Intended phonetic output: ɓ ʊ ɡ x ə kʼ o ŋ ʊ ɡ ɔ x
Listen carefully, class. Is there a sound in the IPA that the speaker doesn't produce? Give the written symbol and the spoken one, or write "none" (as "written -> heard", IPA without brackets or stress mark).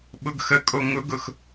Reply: ɔ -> ʊ